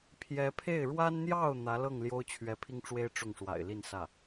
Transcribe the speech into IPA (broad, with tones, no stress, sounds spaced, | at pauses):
pʰ j ɛ˧˥ pʰ e˥˩ ɪ̯ ɻ w a˥ n n̪ j ɑ˥˩ ʊ̯ n̪ ä˧˥ l ɤ˥˩ ŋ l j o˥ ʊ̯ t͡ɕʰ ɥ ɛ˧˥ pʰ i˥ ŋ ʈ͡ʂ w e˥ ɪ̯ ʈ͡ʂ ʊ˥˩ ŋ ʂ w a̰˨˩ ɪ̯ l i˥˧ n s ä˥˩